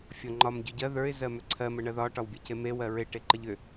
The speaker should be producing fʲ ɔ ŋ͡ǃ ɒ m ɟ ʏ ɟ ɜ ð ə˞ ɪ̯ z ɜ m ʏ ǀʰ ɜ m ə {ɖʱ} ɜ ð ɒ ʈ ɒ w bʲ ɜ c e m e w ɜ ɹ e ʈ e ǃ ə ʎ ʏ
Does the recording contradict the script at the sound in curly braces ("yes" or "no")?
yes